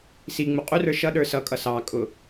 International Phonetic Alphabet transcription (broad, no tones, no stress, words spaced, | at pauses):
si ŋ͡muqʼurə˞ ʃʌ ɗə˞sʌkʼʌ sɑkʼʊ